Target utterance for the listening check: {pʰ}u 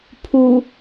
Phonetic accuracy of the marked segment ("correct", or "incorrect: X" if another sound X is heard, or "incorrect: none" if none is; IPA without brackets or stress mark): correct